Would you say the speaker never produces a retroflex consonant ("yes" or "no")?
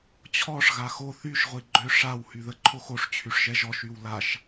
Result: no